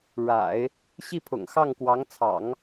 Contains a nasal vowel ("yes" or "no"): no